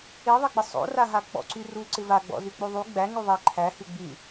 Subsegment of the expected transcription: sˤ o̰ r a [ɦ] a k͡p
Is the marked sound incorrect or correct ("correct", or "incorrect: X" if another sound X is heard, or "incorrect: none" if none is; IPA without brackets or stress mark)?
correct